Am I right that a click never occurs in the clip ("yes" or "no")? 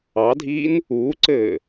no